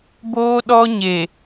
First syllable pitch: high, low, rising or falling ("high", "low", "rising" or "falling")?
high